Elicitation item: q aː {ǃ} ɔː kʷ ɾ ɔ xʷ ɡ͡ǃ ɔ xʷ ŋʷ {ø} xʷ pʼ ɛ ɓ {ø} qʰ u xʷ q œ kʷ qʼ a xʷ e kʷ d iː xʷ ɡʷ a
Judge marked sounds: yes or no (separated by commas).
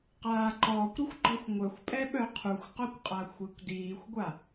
yes, no, no